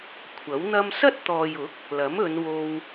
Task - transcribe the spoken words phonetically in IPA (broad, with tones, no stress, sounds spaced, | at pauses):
kʷʰ ɐ˨˥ w n̪ ɐ˥ m s ɐ˥ t̚ t̪ ɔː˨ j ʊ˨˥ k̚ | l ɐ˨˥ m ɵ˨˧ n w o˧ w